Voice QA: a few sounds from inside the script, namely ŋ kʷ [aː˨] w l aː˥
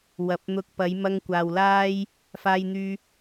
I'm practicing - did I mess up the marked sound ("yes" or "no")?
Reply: no